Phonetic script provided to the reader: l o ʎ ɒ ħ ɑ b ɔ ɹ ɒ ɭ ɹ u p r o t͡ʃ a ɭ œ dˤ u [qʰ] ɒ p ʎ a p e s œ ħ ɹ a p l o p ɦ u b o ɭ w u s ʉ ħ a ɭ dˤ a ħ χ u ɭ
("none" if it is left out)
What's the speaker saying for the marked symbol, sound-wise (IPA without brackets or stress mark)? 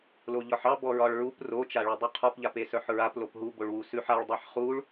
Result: qʰ